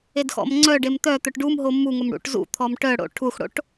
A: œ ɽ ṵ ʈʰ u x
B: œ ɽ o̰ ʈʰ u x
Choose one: B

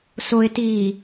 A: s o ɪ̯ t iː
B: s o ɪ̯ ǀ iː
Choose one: A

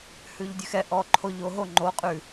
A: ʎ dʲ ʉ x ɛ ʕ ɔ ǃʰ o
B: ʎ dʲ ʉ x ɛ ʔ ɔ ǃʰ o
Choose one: B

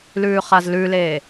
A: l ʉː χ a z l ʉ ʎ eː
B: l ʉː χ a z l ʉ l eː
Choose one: B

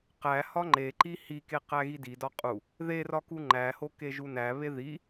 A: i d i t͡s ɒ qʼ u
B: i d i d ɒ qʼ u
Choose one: B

